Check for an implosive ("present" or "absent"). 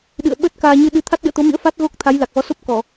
present